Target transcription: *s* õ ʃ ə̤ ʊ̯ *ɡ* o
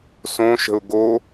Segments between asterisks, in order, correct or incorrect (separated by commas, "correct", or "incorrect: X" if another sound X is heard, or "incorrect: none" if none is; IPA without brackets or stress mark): correct, correct